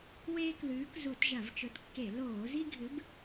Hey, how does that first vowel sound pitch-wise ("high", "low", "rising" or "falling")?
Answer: high